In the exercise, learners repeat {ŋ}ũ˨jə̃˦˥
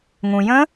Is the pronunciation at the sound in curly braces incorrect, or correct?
correct